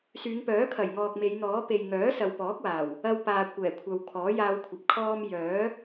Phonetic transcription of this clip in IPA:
syː˨˧ŋpœː˨˥kʰɐ˨˩j ŋɔː˨k̚me˨˧jn̪ɔː˨˥ pe˨jŋœː˨˥ sɐ˨wpɔː˨˥k̚waː˨˩w | ɐ˧wpaː˨ kʷɛː˨˩kʷʰɐ˨w kʰɔː˨˥jaː˧wkʷʰɐ˨p̚ kʰɔː˧m jœː˨˥

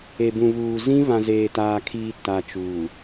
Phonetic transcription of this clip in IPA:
e˨bũ˨βuː˨ zĩ˦ βã˨zeː˨taː˨kʰiː˨ ta˨ t͡ʃuː˨

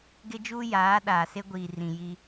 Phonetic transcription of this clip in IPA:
ɡɪ˦d͡ʒuː˦ jaː˨˦ɗaː˨ se˦ɡʷiː˨rĩ˨ji˦

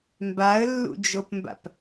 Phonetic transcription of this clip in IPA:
mbaə̯lːṵd͡ʒopmba̰p

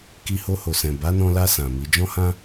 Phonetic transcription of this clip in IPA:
ki˧ho˧ho˨sɛ̃˨ ba˨˦nɔ̃˧la˧ sã˨mi˨˦ d͡ʒɔ̃˦hã˦

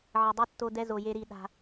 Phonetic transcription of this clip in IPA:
ʕə˧dˤi˦tːo˦ dɛ˦zo˧je˦ ɾi˧ɗa̤˧

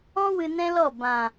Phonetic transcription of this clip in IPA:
ɔ̃˦ wɨ˧nɛ̃˦lɔ˦˨ bã˨

